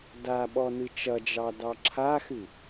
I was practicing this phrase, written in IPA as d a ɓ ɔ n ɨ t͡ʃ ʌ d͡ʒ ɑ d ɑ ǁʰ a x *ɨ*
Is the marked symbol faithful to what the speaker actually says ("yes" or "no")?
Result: yes